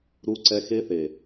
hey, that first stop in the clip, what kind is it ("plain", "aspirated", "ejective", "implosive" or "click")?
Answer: click